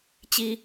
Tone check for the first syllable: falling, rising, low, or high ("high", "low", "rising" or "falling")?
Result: high